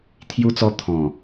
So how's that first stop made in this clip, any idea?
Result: aspirated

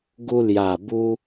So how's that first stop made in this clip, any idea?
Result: plain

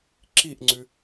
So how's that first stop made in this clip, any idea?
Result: click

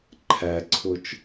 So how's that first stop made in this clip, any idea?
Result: click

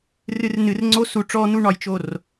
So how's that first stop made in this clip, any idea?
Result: click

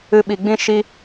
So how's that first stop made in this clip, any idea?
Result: implosive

